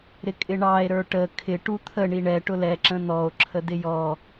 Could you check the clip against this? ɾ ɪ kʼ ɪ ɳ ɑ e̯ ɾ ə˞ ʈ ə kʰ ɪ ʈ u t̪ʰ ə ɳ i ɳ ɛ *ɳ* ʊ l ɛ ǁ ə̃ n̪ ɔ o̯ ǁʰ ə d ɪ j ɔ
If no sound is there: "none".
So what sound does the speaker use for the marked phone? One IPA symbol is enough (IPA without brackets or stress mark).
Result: ʈ